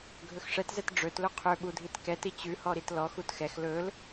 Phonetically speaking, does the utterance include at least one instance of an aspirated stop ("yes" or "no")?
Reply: yes